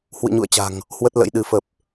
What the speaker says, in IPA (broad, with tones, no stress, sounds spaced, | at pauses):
h w ɨ̰˧˨ ɲ ṵ˧˨ ə̯ t͡ɕ a̤˨˩ ŋ | h w ə˦˥ t̚ l ə̰˧˥ j ɗ ɨ˨˦ f ə˨˩ p̚